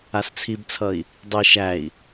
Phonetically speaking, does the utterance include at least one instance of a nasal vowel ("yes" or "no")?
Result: no